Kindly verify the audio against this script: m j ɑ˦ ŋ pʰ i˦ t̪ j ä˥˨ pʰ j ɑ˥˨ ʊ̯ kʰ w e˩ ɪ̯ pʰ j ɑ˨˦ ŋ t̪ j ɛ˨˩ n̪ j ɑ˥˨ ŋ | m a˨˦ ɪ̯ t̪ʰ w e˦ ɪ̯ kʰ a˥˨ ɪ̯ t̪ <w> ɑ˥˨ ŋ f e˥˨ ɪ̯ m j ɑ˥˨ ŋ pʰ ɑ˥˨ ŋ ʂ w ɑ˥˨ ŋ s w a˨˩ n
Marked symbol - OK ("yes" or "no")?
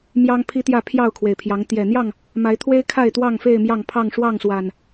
yes